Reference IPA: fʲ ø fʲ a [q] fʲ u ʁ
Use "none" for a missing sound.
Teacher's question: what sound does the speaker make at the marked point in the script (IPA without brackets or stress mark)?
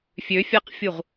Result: q